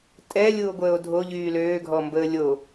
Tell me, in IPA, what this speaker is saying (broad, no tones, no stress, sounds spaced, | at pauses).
tʼ ɛ lʲ u o̯ ɡʷ əː o̯ dʱ o ʎ yː l øː ɡʱ ɔ m b əː lʲ o